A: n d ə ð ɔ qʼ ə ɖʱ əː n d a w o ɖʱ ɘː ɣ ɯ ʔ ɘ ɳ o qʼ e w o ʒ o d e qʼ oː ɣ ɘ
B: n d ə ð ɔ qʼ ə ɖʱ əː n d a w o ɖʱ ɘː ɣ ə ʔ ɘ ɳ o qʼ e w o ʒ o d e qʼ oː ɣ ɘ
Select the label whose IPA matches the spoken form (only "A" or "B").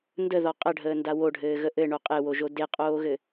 B